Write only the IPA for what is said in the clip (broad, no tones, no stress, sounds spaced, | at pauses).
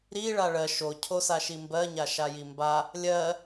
ɾ i ɭ a ɭ ɜ ʃ o cʰ o s a ʃ i m b ɜ ɲ a ʃ a j i m b a | lʲ ɜ